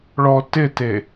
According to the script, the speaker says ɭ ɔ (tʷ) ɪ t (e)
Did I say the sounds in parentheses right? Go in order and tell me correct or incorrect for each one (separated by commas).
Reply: incorrect, correct